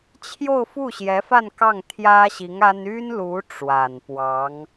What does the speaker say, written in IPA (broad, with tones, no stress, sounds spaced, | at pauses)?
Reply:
t͡ɕʰ j o˥˧ ʊ̯ f u˥˩ ɕ j ɛ˧˥ f a˥˧ n k ɑ˥˩ ŋ t̪ʰ j ä˥ ɕ i˧˥ ŋ a˥ n y˥ n l u˧˥ ʈ͡ʂ w a˨˩ n p w ɑ˧˥ ŋ